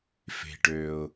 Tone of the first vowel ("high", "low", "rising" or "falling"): low